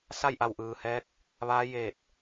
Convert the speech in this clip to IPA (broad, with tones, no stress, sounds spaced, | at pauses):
s a˥˨ j ʔ a˧˩ w ʔ ɯː˩ h ɛː˧˥ k̚ | ʋ aː˧˥ j eː˧˩ t̚